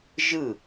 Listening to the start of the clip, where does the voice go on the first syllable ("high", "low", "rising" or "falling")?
falling